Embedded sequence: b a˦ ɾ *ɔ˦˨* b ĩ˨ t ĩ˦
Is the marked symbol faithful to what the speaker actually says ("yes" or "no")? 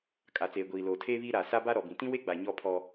no